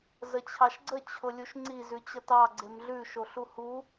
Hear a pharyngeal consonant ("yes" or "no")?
no